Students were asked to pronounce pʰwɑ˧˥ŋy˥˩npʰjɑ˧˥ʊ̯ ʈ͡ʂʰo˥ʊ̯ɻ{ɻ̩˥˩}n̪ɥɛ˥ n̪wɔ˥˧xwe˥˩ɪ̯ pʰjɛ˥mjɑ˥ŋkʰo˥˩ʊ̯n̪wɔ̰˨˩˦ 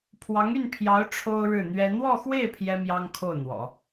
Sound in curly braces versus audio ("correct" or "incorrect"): correct